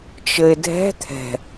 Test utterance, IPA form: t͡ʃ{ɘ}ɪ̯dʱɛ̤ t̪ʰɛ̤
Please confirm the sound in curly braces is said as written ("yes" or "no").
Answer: yes